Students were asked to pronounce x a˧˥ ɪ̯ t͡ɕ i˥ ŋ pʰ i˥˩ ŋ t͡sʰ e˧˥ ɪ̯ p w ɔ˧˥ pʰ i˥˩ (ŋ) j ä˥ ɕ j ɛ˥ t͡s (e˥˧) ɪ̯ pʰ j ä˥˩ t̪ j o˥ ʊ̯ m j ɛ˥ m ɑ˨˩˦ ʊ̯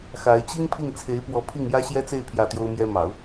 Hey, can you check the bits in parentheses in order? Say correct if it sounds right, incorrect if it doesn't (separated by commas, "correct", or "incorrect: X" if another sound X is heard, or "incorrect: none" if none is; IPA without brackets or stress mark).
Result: correct, correct